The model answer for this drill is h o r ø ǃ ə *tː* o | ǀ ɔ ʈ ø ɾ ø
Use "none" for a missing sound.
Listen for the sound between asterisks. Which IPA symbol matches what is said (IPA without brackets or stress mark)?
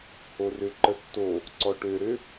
tː